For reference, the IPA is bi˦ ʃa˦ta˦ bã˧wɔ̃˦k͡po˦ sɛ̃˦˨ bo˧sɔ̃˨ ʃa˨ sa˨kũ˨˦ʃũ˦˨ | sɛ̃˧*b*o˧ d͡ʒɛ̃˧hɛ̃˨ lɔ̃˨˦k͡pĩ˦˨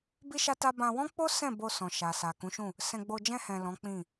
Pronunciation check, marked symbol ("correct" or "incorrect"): incorrect